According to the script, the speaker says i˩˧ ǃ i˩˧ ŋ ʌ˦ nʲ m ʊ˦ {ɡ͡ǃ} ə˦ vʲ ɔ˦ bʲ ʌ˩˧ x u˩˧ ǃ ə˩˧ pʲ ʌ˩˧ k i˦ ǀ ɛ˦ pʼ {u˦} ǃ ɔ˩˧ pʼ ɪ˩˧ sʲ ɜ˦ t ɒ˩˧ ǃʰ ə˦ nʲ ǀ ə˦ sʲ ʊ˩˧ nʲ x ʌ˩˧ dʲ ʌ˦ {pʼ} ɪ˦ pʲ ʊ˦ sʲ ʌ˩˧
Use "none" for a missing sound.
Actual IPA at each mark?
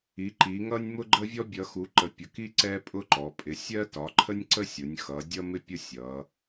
ɡ͡ǃ, ʊ˦, m

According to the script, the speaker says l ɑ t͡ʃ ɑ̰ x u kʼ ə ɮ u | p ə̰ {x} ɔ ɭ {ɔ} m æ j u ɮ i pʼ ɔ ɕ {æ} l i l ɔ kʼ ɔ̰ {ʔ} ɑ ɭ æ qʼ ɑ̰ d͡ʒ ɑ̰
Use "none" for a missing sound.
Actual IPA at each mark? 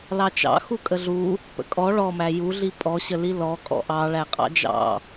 kʼ, ɔ, ə, ʔ

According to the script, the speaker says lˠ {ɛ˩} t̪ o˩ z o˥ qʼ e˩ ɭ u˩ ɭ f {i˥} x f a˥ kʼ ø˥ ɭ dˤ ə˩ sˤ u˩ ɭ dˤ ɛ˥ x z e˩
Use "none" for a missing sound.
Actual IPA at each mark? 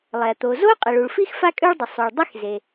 ɛ˩, i˥

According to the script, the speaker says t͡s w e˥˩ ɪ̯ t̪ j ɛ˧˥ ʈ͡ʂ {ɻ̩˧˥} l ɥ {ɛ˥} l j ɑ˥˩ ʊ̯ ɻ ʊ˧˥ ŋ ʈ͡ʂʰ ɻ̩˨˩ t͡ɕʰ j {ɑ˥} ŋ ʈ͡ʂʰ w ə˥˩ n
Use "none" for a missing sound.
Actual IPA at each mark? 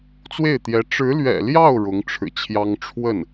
ɻ̩˧˥, ɛ̰˨˩, ɑ˥

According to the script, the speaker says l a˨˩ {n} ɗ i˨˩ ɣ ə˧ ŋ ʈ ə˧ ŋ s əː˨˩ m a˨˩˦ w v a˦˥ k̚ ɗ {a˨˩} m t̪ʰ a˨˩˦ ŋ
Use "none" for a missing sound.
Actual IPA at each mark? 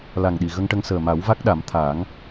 ŋ, a˨˩˦

